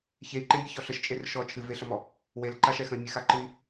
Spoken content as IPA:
ç e i̯ ǃ ẽ mʲ ɛ ç ɔ ɬ ə ʃ t͡ʃʼ e r ʃ ɔ t͡ʃʰ ɨ v e ɬ ə m ɔ | w e l ǃ a ʃ ɛ x ə̃ i̯ mʲ ɨ x a ǃ ɨ i̯

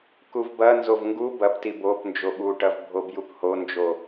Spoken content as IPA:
k u v b ɐ n z o v ŋ ɡ u b ɐ p t i b o p n d͡ʒ o ɓ u ʈ ɐ v bʱ o b j u p h o n d͡ʒ o

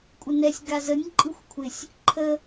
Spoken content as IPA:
kʷʼ ɪ n ɛ sʲ ɡ a z ə nʲ ǃʼ ɯ xʷ kʷʰ ɪ sʲ | ǃʰ ə

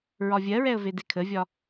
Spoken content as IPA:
ɹ ɒ vʲ ɜ ɹ ɛ ə̯ v e d e kʰ ə vʲ ɒ

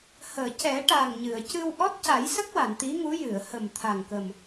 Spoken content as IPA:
h əː˨˩˨ c ɛ˨˩˦ ʈ a˨˩ ŋ ɲ ɨ˨˩˨ ə̯ c ɨ˧ w ʔ ɔ˦˥ t̚ c a˨˩˦ j s ə˦˥ k̚ w a˨˩˨ n t̪ i˧˥ ŋ u˧˥ j ɨ˨˩˨ ə̯ h ə˨˩ m t̪ʰ a˨˩ ŋ k ə˨˩ m

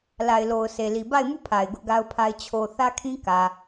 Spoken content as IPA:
l a˨ ɪ̯ l o˨ ʊ̯ s e˨ l i˨ b a˦˨ ɪ̯ m u˦˨ pʰ a˨ ɪ̯ ɡ ʊ˦ ʔ ɡ a˦ ʊ̯ pʰ a˦ ɪ̯ t͡ɕʰ o˨ θ ä˦ kʰ ĩ˦ k ä˨

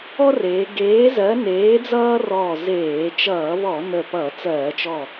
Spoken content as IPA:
ɔ˦ r eː˩˧ ɡ eː˨˥ z ɜ˨˥ n eː˨˥ d͡z ʌː˦ r ɔː˧˩ z eː˧˩˧ t͡ʃ ʌː˧˩˧ β ɔ˧˩˧ n ə˧˩ p ʌː˧˩˧ t͡s ɜː˧˩˧ t͡ʃ ɔ˧˩

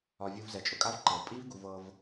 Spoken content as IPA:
ɒ˧ vʲ u˧ v z ɛ˨˦ t͡ʃʼ ʊ˨ kʼ a˦ v ǃ ɤ˨ v pʼ i˦ v ɡ u˧ v ɤ˧ v

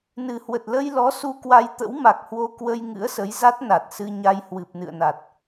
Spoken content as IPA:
n ɨ˨˩ h w ə˨˩ t̚ l ə˧ j l ɔ˨˦ s u˧ k w a˧ j t̪ ə̰˧˥ w m a˨˩ k̚ h w o˧ k w ə˧ j ŋ ɨ̰˧˥ ə̯ s ə˨˦ j z a˦˥ t̚ n a˨˩ t̚ s ɨ˧ ɲ a˧ j h w ɨ˨˩ p̚ n ɨ̰˧˨ ə̯ n a˨˩ t̚

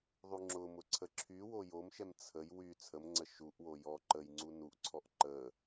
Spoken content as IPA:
ðˤ u ŋ͡ǁ ʊ m ʊ ǀʰ ə ǁʰ y w o j o m ʃ ɛ m t͡sʰ ə j w y t͡sʰ ə m ŋ͡ǀ ə ʃ u ʔ w o j ɔ ǃ ə j ŋ͡ǀ u n u ʔ ǀʰ ɔ ʔ ǃ ə

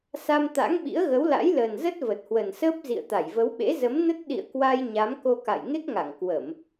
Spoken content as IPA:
s a˧ m t̪ a̰˧˥ ŋ ɓ ḭ˧˥ ə̯ ɣ ə˨˦ w l a̰˧˥ j l əː˨˩ n z ə˦˥ t̚ v ə˨˩ t̚ h w ə˨˩ n s əː˦˥ p̚ z ḭ˧˨ ə̯ t̪ a˧˩ j v ə˨˦ w ɓ ḛ˧˥ z ə˨˦ m n ə˦˥ t̚ ɗ ḭ˧˨ ə̯ k w a˧ j ɲ a˨˦ m k o˧ k a̰˧˨ j ŋ e˦˥ k̚ ŋ a˧˩ ŋ k w ə˧˩˨ m

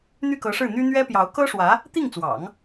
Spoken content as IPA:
n̪ y˥˩ k ɤ˧˥ ʂ ɻ̩˥˩ n̪ y˥ n̪ ɥ ɛ˥ p j ɑ˧˥ ʊ̯ k ɤ˥ ʂ w ä˧˥ | t̪ i˥˩ ŋ t͡s w ɑ̰˨˩˦ ŋ

